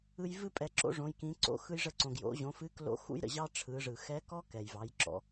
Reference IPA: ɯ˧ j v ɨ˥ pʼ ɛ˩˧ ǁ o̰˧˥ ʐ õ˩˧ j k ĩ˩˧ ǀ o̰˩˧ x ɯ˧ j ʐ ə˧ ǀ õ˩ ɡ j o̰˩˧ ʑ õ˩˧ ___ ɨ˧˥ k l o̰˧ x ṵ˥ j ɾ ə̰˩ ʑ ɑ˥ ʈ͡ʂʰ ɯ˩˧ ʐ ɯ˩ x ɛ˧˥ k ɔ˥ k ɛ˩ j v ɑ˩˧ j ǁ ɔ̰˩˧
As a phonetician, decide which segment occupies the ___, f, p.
f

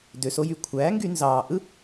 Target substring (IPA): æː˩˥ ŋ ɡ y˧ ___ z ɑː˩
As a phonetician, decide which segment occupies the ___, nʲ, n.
n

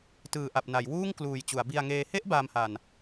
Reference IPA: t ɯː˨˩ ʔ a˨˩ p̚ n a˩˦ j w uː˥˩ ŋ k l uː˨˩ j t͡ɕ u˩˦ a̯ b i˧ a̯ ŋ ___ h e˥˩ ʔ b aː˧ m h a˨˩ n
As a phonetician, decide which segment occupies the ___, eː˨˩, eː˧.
eː˧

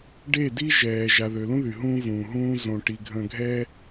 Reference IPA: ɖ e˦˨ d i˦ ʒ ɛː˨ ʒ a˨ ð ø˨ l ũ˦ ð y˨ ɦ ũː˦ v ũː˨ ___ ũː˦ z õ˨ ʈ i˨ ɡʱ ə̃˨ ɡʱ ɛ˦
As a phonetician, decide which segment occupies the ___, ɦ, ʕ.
ɦ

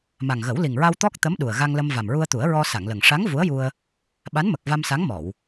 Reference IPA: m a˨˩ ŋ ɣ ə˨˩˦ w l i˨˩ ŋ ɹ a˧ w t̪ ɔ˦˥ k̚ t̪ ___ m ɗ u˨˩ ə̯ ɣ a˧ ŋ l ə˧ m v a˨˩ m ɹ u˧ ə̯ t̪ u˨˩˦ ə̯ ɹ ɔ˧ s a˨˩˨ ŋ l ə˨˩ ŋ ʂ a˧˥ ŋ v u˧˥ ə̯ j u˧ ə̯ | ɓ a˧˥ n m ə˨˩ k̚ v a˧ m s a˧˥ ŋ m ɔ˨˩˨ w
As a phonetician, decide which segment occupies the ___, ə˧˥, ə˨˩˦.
ə˧˥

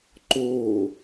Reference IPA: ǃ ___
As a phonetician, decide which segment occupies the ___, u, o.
o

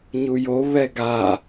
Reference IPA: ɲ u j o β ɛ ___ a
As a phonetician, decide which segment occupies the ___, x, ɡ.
ɡ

